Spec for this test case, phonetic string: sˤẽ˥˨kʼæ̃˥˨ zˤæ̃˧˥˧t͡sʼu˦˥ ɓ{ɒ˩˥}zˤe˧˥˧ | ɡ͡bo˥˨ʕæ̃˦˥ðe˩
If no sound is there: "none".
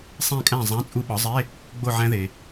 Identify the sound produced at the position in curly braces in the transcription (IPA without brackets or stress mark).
ɒ˩˥